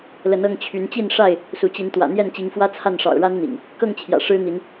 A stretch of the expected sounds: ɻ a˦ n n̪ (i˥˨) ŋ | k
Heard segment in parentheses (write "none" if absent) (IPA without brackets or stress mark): ḭ˨˩